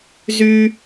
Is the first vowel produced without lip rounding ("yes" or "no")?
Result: no